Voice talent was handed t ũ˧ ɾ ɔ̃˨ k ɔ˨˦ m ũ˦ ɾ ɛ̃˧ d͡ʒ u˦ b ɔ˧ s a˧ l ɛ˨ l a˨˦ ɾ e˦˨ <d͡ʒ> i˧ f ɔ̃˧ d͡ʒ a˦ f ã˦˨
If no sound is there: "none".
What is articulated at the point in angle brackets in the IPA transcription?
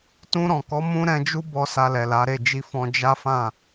d͡ʒ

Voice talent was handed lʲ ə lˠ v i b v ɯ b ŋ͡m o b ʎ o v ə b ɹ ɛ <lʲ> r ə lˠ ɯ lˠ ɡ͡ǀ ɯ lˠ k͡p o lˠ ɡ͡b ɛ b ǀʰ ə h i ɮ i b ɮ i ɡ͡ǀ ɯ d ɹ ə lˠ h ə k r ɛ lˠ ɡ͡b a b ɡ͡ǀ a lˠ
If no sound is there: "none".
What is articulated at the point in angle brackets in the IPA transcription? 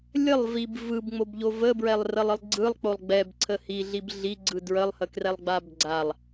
lˠ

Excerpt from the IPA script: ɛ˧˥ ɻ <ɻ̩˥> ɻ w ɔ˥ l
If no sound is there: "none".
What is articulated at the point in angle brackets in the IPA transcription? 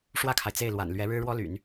ɻ̩˥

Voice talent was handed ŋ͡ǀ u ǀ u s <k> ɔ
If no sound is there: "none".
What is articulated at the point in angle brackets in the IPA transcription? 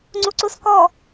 k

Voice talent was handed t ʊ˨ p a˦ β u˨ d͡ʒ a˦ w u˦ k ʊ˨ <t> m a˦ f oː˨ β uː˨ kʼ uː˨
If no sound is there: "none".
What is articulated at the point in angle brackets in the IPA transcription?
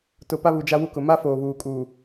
none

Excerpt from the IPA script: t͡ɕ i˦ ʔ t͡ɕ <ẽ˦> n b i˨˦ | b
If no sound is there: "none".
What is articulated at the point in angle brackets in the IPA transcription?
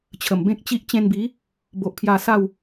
ẽ˧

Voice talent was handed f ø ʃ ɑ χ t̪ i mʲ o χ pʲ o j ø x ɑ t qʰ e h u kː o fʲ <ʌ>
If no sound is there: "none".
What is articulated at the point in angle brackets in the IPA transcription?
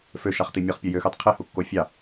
ɑ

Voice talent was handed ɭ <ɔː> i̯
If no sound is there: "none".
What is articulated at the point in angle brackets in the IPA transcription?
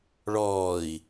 ɔː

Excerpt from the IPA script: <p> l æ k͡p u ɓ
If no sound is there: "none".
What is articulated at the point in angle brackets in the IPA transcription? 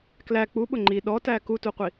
k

